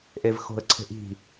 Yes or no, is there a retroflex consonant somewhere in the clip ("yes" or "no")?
no